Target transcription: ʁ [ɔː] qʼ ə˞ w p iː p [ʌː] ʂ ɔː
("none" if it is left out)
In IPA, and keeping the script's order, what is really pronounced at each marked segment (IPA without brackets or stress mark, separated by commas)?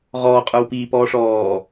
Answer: ɔː, ɔː